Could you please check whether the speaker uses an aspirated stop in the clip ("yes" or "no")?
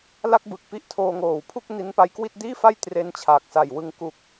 yes